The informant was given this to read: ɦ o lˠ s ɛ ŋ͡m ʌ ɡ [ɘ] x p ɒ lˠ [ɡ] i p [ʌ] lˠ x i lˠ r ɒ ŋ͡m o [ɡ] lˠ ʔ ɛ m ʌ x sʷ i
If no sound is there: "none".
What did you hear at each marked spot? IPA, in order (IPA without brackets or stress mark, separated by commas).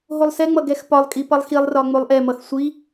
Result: ɛ, kʼ, ʌ, none